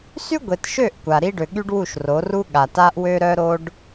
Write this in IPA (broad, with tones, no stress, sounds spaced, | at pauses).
s y˦ ɡʷ e˨ t ʃ ø˦˨ ʔ kʷ a˨ ɾ i˦ ɖ ø˨ ɠ y˦ ɖ w u˦˨ ʃ r o˨˦ r u˦ ɠ a˨ t a˦ ʔ w ø˦ ɾ œ˦ ɾ o˦ ɖ